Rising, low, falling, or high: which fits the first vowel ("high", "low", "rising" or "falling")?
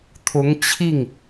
rising